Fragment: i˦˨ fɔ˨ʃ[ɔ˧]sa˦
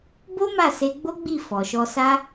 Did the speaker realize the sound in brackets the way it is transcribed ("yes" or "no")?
yes